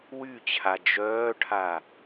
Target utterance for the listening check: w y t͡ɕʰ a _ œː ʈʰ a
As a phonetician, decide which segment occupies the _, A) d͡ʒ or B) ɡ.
A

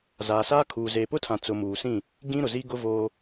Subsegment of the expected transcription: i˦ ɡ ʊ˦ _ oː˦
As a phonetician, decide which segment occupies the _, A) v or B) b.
A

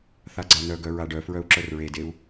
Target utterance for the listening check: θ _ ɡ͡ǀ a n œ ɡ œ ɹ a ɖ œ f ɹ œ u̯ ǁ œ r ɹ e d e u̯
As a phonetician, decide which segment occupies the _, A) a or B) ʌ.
A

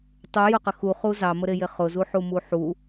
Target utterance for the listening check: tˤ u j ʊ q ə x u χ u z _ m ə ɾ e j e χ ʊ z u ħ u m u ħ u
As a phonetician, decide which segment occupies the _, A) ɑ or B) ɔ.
A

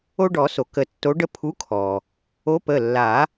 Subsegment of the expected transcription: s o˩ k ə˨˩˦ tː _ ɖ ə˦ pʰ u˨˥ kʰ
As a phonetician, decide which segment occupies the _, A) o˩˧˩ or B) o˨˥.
B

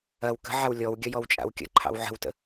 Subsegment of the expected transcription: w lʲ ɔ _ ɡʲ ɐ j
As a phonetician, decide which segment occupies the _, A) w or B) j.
A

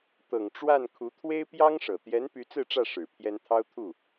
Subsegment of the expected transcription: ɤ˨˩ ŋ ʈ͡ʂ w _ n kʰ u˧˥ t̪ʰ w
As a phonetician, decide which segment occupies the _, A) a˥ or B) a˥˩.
B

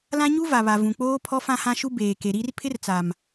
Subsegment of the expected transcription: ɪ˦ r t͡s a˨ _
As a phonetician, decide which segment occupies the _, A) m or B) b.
A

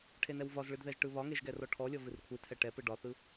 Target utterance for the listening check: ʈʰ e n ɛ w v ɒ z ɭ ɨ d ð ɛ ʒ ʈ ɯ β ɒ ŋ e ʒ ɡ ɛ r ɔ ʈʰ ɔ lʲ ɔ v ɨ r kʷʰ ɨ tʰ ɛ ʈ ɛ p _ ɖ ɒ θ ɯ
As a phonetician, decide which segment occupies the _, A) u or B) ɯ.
B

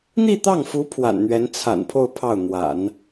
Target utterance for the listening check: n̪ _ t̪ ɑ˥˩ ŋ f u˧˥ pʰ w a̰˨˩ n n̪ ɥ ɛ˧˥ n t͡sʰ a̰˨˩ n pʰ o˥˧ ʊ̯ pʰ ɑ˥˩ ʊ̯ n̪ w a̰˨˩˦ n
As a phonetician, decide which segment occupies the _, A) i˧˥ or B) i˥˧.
B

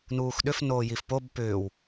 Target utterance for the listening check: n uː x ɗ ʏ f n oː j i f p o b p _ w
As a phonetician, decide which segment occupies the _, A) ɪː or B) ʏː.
B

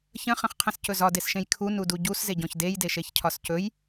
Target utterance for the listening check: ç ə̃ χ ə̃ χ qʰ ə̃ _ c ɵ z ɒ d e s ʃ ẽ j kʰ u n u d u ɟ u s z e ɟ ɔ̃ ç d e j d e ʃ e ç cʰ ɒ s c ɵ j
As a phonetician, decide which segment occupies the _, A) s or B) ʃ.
A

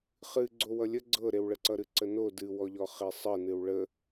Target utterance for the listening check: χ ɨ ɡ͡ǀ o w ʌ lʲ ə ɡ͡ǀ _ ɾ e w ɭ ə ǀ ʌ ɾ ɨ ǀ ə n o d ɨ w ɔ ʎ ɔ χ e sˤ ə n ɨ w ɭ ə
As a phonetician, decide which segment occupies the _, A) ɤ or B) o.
A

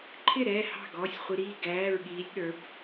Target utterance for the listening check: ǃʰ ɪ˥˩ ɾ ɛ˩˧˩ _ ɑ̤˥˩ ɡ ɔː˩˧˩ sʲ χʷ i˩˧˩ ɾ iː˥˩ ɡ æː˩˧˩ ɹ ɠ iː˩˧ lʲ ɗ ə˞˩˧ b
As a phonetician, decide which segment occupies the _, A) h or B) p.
A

